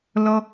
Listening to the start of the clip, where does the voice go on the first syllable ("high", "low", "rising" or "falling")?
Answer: high